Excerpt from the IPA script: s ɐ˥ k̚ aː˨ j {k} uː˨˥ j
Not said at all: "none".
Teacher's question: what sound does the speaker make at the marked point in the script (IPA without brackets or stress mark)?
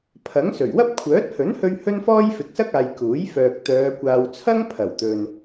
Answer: k